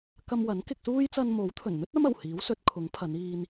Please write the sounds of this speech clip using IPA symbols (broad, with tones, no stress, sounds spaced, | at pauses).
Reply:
k ɐ˧ m w ɐ˨˥ n k ɪ˧ k̚ s uː˥ j t͡s ɐ˧ n m o˨˥ w t̪ʰ ɵ˨˩ n n̪ ɵ˥ t̚ ɐ˥ m ɐ˨˩ w h iː˨˥ w s ɵ˨˥ t̚ kʰ ʊ˨˥ ŋ pʰ ɐ˨˧ n iː˧ n